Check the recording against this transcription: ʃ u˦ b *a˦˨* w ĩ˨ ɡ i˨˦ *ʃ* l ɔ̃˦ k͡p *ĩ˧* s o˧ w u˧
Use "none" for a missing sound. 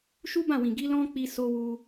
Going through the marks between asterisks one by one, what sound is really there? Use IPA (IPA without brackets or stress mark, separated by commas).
ã˦˨, none, i˧